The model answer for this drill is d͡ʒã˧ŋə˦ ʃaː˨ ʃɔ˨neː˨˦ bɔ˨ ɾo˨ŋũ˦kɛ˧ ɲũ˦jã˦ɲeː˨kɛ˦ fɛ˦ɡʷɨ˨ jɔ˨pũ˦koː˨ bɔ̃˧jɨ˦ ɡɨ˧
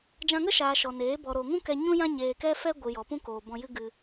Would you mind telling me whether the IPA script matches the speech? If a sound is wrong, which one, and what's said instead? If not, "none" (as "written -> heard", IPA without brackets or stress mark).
none